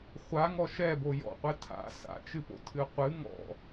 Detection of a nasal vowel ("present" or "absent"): absent